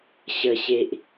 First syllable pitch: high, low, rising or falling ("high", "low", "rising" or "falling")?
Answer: low